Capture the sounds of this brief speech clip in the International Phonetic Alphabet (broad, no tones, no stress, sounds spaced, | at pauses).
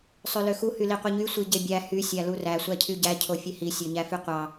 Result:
sˤ ø l ø x u h y l i qʷ i ɲ y sʷ i ɟ e bʲ æ h y sʲ æ l u r æ sʷ æ cʰ y ɟ æ cʰ o fʲ e h i sʲ ø ɲ æ f y qʷ ɑ